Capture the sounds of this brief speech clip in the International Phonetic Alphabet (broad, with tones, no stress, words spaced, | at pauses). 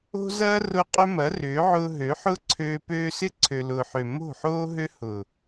o̤˦zɐː˦rʊ˧ qʼʏ˦mɐ˨˦rʏː˨˦ ʕʊː˧ɦø˨˦ħʊː˦ǀʰøː˧ pøː˧ sɪ˧ǀʰø˨lʊː˨ħø˨ mo̤˦˨ħoː˦ɦø˦ hʊ˨